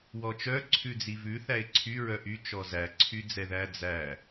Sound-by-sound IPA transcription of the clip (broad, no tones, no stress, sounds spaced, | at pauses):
w ɔ t͡ʃ œ ǀʰ ʉ d͡z i v ʉ θ æ ɪ̯ ǀʰ y ɹ œ ʔ y t͡ʃ ɔ z æ ǀʰ y d͡z ɛ ð æ d͡z æ